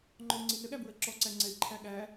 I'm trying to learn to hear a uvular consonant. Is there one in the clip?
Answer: no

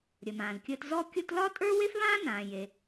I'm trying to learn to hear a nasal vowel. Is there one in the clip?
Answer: yes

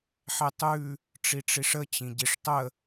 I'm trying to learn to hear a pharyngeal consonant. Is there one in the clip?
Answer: yes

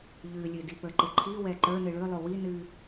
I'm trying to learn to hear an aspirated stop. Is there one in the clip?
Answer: yes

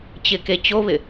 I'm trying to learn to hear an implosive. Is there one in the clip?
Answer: no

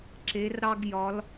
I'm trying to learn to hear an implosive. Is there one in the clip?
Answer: no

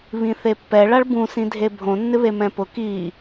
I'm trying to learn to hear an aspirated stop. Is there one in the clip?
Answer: no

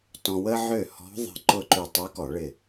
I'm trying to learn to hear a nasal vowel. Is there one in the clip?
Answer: yes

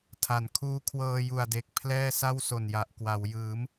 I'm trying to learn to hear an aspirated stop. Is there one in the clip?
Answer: yes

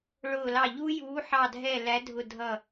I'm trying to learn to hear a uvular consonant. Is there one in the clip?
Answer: no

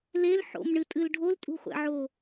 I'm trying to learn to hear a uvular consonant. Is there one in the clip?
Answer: yes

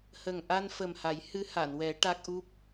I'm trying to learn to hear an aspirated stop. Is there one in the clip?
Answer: no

